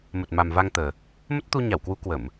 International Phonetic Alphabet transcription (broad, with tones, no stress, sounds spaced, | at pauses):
m ə˨˩ t̚ m a˨˩ m v a˧ ŋ t̪ əː˨˩ | m ə˦˥ t̚ t̪ u˧ ɲ a˧˩ w k w u˨˦ k w ə˧˩˨ m